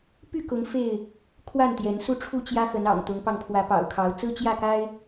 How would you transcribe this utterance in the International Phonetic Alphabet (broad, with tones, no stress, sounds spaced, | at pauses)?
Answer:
p y˥˨ k ʊ˨˦ ŋ f e˥˨ ɪ̯ | kʰ w a˥˨ n t̪ j ɛ˨˦ n s u˥˨ ʈ͡ʂʰ u˥˨ t͡ɕ j ä˦ x ə˨˦ n ɑ̰˨˩ ŋ t̪ ʊ˨˦ ŋ p ɑ˧ ŋ pʰ w ä˨˦ p ɑ̰˨˩ ʊ̯ kʰ ɑ˨˦ ʊ̯ t͡s ɹ̩˦ t͡ɕ j ä˥˨ k a˦ ɪ̯